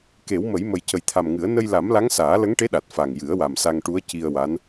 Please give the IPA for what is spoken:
k e˨˩˦ w m ə˨˩˦ j m ə˨˩ j c ə˨˩ j t̪ʰ a˨˩ m ŋ ɨ˨˩˦ ə̯ n ə˧ j l a˨˩˦ m l a˧˥ ŋ s aː˨˩˦ l ə˧˥ ŋ ʈ e˧˥ ɗ a˨˩ t̚ f a˨˩ ŋ j ɨ˨˩˦ ə̯ w a˨˩ m s a˧ ŋ ʈ u˧˥ ə̯ c i˧ ə̯ w a˧˥ n

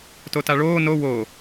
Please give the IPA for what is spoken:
t o t a ɭ oː n o w oː

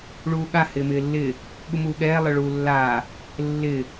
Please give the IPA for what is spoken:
ɭ uː ɠ a h ɪː m ɪː lː ɪː | ɠ u m uː ɠ ɛː lˠ ɛ ɭ uː lː aː | lː ɪː

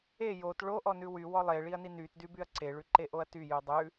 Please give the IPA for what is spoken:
e j o t ɭ o ʔ ɔ n ʉ w y w ɔ lˠ e ɭ i ɐ̯ n i n y t d y b y ɐ̯ ǀ e ɭ ʉ ǃ e ʔ o ɐ̯ t y j ʉ dˤ ʉ

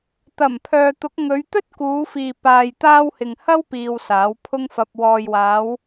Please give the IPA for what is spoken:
t̪ ɐ˨˩ m pʰ œː˨ t̪ ʊ˨˥ k̚ ŋ ɵ˨˧ ɥ t̪ ɵ˥ t̚ k uː˨˧ f iː˨ p aː˨ j t̪ aː˧ w h ɪ˨ ŋ h ɐ˥ w p iː˨ w s aː˨˥ w pʰ ʊ˥ ŋ f ɐ˧ p̚ w ɔː˨ j w aː˨˧ w

